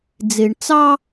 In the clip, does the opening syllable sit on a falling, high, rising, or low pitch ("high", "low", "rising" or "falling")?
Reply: low